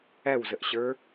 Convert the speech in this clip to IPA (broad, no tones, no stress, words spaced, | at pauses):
æwzəʔɕə˞